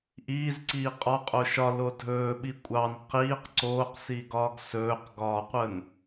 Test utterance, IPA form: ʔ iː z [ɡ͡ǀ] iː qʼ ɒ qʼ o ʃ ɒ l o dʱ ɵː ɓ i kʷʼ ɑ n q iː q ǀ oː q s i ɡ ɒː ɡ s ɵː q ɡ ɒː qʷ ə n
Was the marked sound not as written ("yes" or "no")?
yes